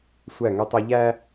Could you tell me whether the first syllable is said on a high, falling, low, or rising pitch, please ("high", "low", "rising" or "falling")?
falling